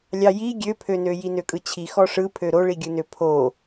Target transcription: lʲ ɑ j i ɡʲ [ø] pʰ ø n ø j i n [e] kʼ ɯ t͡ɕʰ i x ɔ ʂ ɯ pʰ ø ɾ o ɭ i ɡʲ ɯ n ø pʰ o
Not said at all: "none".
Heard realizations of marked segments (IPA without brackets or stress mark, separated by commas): ø, ø